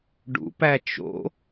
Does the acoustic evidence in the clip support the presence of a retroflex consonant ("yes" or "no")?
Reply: yes